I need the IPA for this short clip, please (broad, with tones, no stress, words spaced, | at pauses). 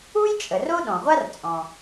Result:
u˥jt͡ʃʼə˩r o˥ɗɔ̃˩ʁʷa˥rt͡sʼɔ̃˩